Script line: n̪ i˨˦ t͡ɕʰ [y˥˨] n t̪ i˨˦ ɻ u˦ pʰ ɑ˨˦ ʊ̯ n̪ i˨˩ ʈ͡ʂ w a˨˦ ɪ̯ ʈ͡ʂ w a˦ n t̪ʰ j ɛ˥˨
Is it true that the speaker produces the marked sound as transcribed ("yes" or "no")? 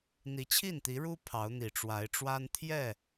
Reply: no